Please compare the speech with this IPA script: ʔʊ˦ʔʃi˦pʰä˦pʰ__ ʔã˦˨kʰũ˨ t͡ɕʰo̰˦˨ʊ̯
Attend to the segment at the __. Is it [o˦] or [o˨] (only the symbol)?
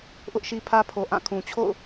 o˨